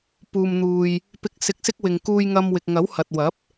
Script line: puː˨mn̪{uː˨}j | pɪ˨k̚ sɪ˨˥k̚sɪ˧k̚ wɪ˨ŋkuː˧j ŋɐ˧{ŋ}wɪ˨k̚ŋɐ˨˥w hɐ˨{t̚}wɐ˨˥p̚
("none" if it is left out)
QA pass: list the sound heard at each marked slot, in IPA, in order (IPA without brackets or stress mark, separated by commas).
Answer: uː˨, m, t̚